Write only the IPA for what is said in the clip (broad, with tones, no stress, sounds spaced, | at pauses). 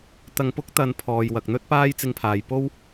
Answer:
t̪ ɐ˨ ŋ p ʊ˧ k̚ t̪ ɐ˨ n pʰ ɔː˨ j w ɐ˨ k̚ n̪ ɵ˥ t̚ p aː˥ j t͡s ɪ˧ ŋ pʰ aː˨ j p o˥ w